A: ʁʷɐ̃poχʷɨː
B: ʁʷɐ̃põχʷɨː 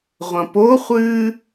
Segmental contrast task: A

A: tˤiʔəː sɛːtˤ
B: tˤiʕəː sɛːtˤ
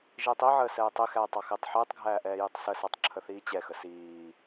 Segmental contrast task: B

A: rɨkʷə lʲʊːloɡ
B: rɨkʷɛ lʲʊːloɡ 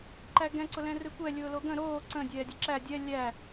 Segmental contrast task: B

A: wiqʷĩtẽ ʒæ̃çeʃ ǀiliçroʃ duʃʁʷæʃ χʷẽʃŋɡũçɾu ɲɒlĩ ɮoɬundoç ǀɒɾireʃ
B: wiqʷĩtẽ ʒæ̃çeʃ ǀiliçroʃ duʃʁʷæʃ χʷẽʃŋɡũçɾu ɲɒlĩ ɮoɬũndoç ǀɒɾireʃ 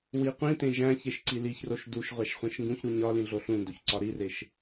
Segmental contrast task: B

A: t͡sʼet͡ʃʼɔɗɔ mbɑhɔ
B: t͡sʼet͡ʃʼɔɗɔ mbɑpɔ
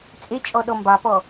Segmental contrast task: B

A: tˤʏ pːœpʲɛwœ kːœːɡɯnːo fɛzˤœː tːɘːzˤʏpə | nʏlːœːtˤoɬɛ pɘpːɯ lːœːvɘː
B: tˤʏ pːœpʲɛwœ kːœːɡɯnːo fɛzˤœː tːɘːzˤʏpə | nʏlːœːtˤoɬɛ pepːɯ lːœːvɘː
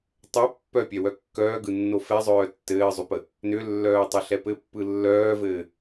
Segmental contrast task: A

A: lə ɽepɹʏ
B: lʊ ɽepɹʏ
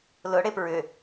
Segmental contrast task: B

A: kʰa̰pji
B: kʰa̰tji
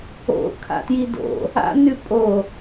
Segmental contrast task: B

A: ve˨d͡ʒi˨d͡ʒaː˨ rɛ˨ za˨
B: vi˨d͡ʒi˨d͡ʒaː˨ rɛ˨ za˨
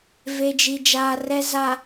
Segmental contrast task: A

